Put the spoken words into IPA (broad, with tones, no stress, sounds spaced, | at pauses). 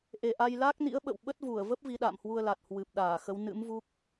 ʔ e˨˩ ʔ a˧ j l aː˦˥ k̚ n ḭ˧˥ ə̯ ɓ ə̰˧˨ w ɓ ə˦˥ t̚ v u˧˩ ə̯ v ə˦˥ p̚ v i˨˦ ɗ a̰ː˧˨ m h w u˧ ə̯ l a˨˩ t̚ h w ɨ˨˩ p̚ ɗ aː˧˩ x ə˨˦ w n ɨ̰˧˥ m v u˦˥ k̚